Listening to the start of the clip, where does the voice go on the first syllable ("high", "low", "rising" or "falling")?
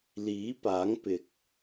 rising